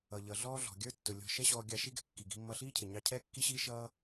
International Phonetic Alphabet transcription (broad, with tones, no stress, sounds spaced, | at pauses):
ʌ˩ ʎ ʌ˩ ɮ ɔː˥ ɮ ɔ̤˩ ɡʲ ə˞˥ tː ʊ˩ lʲ ɔ̤˧ ʃ ɛ˥ ɕ ɔː˧ ɡʲ ɑ˧ ʃ i˥ ɡ ɛ̤˧ kː i˩ ɡ i̤˧ mː ʌ˧ ɬ iː˥ cʰ ɪ˩ ɲ ɑ˧ cʰ ɛː˥ kː i˥ ɕ iː˥ ʃ ʌː˥